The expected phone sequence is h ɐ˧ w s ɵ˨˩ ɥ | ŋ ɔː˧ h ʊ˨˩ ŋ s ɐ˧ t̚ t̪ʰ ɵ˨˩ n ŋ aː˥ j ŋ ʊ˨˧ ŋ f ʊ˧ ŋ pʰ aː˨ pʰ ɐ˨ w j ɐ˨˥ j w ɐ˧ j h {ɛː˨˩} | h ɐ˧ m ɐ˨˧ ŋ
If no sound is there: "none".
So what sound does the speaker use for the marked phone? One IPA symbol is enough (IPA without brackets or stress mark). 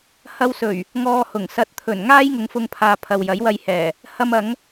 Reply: ɛː˨˩